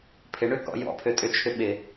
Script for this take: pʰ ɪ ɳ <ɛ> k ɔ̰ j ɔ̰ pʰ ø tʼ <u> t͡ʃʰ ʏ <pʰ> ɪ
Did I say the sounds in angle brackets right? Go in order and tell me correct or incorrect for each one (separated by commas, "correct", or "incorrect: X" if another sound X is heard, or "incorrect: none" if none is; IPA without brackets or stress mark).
incorrect: ʏ, incorrect: ʏ, incorrect: ɓ